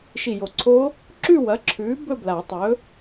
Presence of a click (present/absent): present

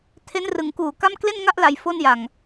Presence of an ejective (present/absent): absent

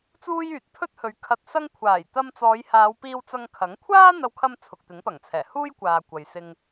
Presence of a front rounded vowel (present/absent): present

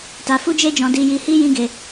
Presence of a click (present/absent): absent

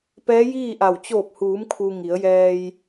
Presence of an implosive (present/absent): absent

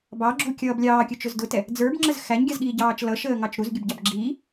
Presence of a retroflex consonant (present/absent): absent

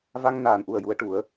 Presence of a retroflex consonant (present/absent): present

